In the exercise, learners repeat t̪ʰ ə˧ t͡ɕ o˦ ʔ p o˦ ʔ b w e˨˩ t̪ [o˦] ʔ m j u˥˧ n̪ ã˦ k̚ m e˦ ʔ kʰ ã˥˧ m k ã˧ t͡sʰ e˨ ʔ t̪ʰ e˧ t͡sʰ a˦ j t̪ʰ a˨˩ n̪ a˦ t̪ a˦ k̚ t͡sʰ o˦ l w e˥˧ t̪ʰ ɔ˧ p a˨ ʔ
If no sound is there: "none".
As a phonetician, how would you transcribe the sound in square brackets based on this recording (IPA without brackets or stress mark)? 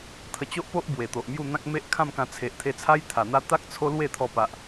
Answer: o˨